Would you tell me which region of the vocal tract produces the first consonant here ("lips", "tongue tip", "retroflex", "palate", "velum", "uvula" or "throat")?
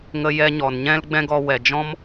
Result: velum